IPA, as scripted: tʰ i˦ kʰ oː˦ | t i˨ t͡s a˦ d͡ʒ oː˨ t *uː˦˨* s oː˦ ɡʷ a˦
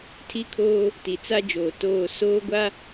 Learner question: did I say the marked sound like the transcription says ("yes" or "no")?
no